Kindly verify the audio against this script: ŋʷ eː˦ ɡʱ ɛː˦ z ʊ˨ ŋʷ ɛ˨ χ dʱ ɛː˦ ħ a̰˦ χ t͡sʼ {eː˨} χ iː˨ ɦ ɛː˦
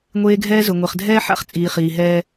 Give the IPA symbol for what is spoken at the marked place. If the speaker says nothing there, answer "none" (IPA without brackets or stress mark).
iː˨